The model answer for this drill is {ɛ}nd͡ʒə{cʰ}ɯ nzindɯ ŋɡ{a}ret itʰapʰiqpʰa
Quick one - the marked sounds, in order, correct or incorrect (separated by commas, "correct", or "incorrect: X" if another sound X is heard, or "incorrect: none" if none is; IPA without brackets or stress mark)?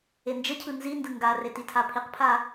incorrect: e, correct, correct